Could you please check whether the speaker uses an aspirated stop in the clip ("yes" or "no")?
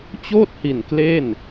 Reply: no